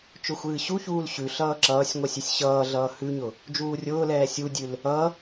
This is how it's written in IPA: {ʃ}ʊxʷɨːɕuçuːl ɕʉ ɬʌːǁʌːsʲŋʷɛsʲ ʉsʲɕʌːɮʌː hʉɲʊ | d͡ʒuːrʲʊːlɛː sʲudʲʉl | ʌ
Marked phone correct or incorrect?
incorrect